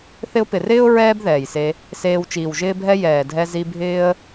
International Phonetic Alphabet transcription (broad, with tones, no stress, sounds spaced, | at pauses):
θ ɪ˧ ʊ̯ p ɪ˨ r ɪː˦ ʊ̯ ɹ ɛː˦ b ð ɛː˨ j s e˧ | s eː˧ w t͡ʃ iː˨ w ʒ ɪː˦ bʱ ɛ˦ j ɛː˨ dʱ ɛ˧ z i˧ bʱ ɪː˦ ə̯